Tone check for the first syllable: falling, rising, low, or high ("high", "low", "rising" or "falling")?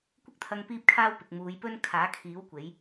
high